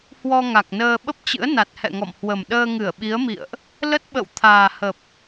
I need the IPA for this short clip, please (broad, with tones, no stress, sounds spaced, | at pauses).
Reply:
h w ɔ˧ ŋ a˨˩ k̚ n əː˧ ɓ ə˦˥ p̚ t͡ɕ ɨ̰˧˥ ə̯ n a˨˩ t̚ h ɛ̰˧˨ ŋ ɔ̰˧˨ m h w ə˨˩ m ɗ əː˧ ŋ ɨ˧˩ ə̯ ɓ i˨˦ ə̯ m ḭ˧˨ ə̯ ʔ | l ə˦˥ t̚ ɓ ə̰˧˨ w t̪ʰ aː˨˩ h ə˨˩ p̚